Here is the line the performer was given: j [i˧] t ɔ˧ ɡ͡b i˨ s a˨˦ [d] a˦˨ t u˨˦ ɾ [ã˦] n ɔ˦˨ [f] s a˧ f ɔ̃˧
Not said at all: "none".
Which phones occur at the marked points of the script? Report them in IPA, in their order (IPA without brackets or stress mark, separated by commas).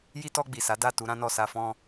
i˧, d, ã˦, none